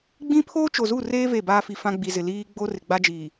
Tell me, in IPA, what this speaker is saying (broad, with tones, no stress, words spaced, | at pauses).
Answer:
ɡ͡bĩ˦ pʰoː˦t͡ʃo˨zu˦˨reː˦ ve˦˨baː˦fi˨fã˦ ɡ͡bi˨zɪ˨ liː˦ ɡ͡bo˦rɪ˨ɡ͡ba˦d͡ʒiː˨